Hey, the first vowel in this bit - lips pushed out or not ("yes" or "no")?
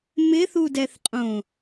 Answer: no